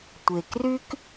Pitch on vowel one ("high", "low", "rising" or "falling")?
low